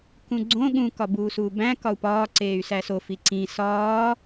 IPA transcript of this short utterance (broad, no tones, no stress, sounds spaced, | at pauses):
k ũ ɡ͡ǀ õ ɠ ũ k ɒ b uː s uː b æ̃ k ɒ u̯ p ɒː ǀ eː y̯ s æ s o f i ǀ ĩ s ɒː